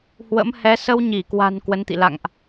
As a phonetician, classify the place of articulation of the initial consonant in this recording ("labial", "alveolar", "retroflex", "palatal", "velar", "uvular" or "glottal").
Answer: glottal